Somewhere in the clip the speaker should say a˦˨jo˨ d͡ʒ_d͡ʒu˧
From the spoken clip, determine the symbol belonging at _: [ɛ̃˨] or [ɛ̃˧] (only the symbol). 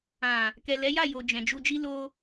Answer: ɛ̃˨